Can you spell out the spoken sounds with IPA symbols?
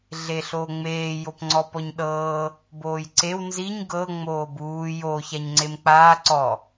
ɮ e ɬ oː ŋ͡m eː j o p ŋ͡ǀ ɔ p ɔ ɲ ɗ ɤː | b oː j ǀ e w n z i ɲ ɡ ɤ ŋ͡m oː b uː j o ç a ɲ ŋ͡ǀ e m k͡p aː ǀ ɔ

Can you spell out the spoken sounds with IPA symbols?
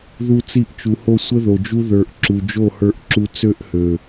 ð u˧ t͡s i˧ ʔ t͡ʃ u˨ h o˧ sʷ ə˦ ð o˨ d͡ʒ u˦ ð ə˞˨ ʔ ǁ u˨ d͡ʒ o˦˨ h ə˞˧ ʔ ǁ u˧ t͡s ø˦ ʔ h ø˨

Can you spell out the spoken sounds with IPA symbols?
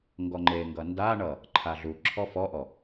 ŋ ɡ ɔ ŋ͡ǃ e ŋ ɡ ʌ n d a ɳ ʌ | ǃʰ a ɮ u ǁʰ ɔ f ɔ ʔ ɔ

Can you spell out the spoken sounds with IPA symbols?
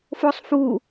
f o sˤ f u

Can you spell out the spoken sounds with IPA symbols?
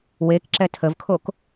w e k ǁ ɛ tʰ ə v kʰ o k

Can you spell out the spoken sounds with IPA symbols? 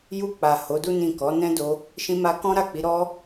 j u˧ k͡p a˨ h o˨˦ d u˦ n ĩ˦˨ k ɔ˨˦ n ɛ̃˦ d o˧ | ʃ ĩ˧ m a˧ k ɔ̃˦ ɾ a˦˨ k͡p i˨˦ ɾ ɔ˦

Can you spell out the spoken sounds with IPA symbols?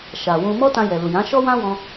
ʃ a˨ w ũ˧ m ɔ˦ t ã˧ j ɛ˨ l u˨ j ã˨˦ ʃ ɔ˦ w ã˦ w ɔ̃˧

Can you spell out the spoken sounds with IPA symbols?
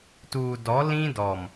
t uː˨ d ɔ˨˦ l ĩ˦ d ɔ˨ m

